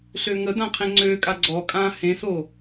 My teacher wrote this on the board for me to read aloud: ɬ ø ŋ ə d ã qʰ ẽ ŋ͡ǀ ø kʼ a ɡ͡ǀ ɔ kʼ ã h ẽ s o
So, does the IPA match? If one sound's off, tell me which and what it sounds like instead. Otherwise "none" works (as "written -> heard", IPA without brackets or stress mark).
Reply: none